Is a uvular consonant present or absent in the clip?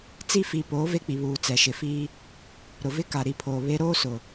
absent